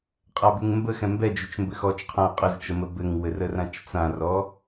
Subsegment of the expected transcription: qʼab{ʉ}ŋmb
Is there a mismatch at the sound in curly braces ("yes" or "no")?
no